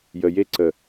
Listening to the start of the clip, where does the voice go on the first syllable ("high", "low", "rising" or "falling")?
low